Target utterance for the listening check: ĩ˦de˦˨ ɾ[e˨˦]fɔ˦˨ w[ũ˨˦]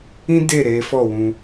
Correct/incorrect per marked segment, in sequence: correct, incorrect

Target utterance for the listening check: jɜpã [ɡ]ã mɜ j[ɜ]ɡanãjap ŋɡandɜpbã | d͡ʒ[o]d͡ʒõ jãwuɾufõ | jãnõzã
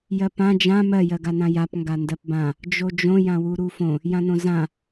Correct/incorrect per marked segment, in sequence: incorrect, correct, correct

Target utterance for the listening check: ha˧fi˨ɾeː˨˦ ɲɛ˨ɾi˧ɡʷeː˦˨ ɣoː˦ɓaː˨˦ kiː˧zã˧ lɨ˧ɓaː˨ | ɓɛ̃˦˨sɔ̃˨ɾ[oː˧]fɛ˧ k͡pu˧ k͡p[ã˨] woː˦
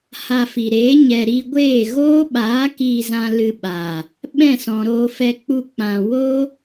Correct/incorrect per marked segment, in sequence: correct, correct

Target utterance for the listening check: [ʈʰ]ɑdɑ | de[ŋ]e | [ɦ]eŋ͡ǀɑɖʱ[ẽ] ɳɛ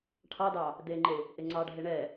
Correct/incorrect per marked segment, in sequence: correct, incorrect, incorrect, incorrect

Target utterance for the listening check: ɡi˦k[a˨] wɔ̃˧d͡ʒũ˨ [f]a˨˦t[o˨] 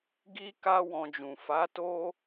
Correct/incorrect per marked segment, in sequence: incorrect, correct, incorrect

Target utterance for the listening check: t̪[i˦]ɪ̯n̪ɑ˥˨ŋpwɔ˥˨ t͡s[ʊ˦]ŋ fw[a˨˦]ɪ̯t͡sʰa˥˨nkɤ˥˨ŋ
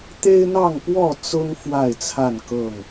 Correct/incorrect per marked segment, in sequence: incorrect, correct, incorrect

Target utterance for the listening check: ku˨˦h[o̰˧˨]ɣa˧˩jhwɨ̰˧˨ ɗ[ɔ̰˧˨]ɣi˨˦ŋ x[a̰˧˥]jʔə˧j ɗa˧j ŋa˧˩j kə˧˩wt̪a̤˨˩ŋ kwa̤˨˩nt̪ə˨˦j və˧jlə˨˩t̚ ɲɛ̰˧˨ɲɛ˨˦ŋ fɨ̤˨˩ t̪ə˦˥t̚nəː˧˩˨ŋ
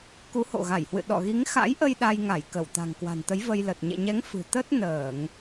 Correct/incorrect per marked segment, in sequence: correct, correct, correct

